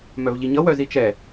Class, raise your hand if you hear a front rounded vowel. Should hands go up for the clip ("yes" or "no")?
yes